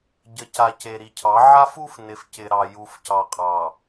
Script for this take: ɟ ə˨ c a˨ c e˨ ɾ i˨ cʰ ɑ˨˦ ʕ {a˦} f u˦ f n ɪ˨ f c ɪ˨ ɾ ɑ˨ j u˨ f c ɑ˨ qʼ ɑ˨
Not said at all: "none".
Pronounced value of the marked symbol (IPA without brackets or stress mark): a˦